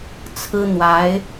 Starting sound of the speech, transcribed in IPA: t͡sʰ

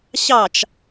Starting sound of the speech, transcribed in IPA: ɕ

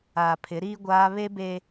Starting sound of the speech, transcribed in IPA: aː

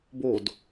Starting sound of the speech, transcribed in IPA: b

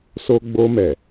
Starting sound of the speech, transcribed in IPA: s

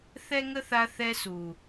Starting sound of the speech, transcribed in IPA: θ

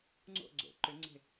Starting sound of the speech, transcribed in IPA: ŋ͡ǀ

